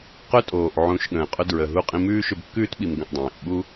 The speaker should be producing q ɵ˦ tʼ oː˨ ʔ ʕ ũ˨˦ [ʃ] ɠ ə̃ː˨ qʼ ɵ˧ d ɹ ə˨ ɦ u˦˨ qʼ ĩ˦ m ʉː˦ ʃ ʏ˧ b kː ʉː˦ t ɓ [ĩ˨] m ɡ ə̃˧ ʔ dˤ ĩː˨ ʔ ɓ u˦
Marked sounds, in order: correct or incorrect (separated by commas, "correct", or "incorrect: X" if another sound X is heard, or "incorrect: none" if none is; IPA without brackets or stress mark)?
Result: correct, incorrect: i˨